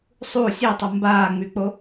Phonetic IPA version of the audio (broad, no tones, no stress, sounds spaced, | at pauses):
sˤ u sʲ e tˤ ə m b aː ŋ͡m y k͡p o